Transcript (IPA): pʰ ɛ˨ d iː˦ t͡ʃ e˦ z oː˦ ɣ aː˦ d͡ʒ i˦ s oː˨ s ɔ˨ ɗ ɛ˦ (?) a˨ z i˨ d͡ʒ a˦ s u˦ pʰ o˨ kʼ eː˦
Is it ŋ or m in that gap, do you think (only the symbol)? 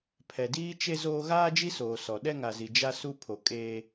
ŋ